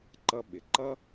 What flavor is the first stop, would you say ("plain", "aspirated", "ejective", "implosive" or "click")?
click